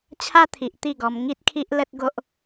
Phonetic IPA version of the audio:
t͡ɕʰ a˦ t̪ʰ i˨ ʔ t̪ i˥˧ ɡ ɔ˧ m ŋ i˦ t̚ kʰ i˦ ʔ l ə˦ t̚ ɡ o˦ ʔ

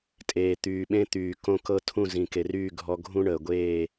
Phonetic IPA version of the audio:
tʼ eː˨ t̪ yː˨ ɓ ẽ˦ t̪ yː˨ k õ˦ k ɤ˦ tʰ ũ˦˨ z ĩ˨ k e˨ r yː˦˨ ɡʱ ɔ˦ ɡʱ ũ˦ ɳ əː˨ ɡʷ eː˦˨

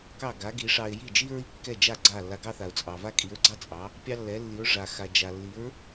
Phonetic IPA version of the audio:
k ɑ˥˩ ɡ a˩˥ ɡ i˩˥ ʂ ɑ˧ ɪ̯ j i˥˩ d͡ʒ i˥ ɹ i˥˩ kː ɛ˥˩ d͡ʒ a˥˩ ɡ͡ǀ a˥˩ lː a˧ ɡ ɑ˥ θ a˩ ʊ̯ t͡sʼ ɑ˩ v a˥ kʼ i˩˥ ɹ ɡ͡ǀ ɑ˥ t͡sʼ ɑ˩˥ | pʲ ɑ˥ lː ɛ˩˥ lː i˩˥ ɹ ʐ a˩ x a˩ d͡ʒ a˩ lː i˩˥ ɹ

